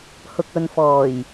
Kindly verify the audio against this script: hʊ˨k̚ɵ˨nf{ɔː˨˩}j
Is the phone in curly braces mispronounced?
no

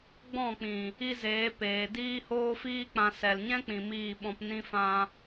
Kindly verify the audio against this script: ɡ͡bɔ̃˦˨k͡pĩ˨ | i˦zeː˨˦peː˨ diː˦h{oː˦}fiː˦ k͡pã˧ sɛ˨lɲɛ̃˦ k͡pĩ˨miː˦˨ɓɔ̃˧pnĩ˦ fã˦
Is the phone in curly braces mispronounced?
no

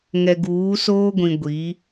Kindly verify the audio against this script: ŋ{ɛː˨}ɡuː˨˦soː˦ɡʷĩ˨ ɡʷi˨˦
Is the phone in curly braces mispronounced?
yes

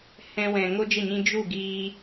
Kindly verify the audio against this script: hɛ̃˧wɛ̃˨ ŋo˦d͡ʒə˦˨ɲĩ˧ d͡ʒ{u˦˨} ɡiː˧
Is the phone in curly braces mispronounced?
no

